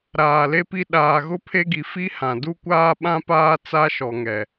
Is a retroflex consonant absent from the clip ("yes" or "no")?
yes